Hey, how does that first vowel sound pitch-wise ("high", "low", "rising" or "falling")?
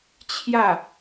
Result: falling